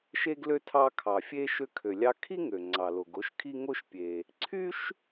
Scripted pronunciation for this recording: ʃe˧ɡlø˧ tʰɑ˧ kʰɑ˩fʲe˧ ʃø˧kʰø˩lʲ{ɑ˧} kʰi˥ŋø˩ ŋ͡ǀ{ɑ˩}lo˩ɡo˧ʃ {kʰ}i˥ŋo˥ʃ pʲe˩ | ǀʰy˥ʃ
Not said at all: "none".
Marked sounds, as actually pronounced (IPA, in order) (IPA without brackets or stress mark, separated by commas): ɑ˧, ɑ˩, kʰ